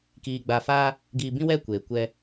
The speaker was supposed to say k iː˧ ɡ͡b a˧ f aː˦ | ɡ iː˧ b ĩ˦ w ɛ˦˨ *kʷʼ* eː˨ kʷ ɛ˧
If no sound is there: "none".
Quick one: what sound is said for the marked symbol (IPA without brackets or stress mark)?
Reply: kʷ